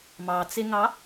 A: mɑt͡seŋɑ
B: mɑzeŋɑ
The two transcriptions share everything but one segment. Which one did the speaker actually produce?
A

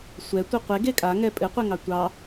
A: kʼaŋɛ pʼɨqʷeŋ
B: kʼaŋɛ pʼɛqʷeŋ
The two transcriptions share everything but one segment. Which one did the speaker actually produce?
A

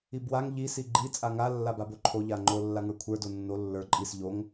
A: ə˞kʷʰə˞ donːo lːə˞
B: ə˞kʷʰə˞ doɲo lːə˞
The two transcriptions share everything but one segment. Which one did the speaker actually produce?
A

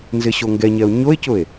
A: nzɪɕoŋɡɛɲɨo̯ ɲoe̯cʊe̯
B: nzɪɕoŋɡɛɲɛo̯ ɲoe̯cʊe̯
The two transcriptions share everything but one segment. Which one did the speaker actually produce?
B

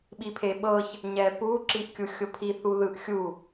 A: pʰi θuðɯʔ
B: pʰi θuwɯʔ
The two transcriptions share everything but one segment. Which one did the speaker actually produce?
A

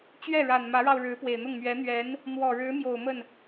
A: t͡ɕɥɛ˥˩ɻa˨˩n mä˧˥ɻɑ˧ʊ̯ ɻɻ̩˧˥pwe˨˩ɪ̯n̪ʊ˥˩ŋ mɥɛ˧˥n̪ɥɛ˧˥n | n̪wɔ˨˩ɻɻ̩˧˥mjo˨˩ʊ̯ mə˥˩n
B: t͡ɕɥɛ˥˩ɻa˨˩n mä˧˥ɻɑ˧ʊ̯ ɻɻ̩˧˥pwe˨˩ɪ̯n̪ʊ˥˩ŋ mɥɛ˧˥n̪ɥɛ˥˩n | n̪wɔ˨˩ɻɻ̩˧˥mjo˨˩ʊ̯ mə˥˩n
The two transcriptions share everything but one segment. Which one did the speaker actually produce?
A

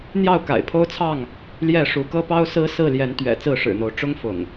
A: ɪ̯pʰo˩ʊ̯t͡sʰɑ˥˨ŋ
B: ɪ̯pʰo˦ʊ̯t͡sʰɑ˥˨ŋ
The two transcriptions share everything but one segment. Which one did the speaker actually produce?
B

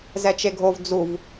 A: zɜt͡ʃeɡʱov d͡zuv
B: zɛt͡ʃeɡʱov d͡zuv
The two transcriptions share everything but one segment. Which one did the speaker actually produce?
B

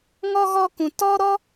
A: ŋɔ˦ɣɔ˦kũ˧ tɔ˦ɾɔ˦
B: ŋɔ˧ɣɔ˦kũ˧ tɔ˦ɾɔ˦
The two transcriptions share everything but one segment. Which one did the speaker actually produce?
A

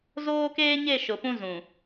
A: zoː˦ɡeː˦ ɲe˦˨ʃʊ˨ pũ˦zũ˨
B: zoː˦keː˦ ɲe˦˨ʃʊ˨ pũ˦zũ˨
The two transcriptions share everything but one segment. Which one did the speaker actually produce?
B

